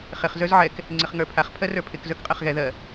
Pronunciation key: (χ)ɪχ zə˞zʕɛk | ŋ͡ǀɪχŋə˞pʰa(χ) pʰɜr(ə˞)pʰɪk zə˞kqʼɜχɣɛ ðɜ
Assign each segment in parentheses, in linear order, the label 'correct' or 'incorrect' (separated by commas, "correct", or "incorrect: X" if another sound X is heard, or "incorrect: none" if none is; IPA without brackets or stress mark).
correct, correct, correct